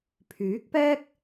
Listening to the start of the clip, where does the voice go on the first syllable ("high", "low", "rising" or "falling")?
rising